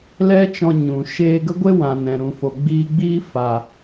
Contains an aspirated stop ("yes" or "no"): no